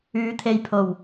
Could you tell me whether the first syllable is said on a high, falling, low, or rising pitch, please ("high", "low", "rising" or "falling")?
rising